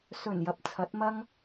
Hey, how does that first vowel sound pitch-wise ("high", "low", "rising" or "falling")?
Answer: low